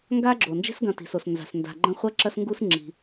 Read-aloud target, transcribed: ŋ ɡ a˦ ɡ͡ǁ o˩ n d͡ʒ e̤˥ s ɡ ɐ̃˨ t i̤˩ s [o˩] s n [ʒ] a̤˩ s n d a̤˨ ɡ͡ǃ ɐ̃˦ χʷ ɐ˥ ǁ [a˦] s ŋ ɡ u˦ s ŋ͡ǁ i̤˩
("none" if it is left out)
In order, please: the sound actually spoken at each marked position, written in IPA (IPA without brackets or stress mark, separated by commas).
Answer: o˩, z, ɐ˦